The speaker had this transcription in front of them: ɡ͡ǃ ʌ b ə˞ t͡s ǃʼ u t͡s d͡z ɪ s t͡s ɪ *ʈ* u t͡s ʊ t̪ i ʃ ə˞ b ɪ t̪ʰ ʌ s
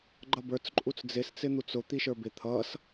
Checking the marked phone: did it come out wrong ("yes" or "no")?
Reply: yes